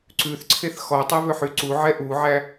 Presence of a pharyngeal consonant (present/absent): present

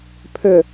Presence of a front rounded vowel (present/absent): present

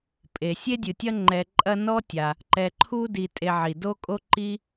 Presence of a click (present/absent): present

